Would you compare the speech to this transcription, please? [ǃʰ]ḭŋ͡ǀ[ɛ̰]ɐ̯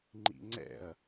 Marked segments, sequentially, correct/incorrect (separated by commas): incorrect, correct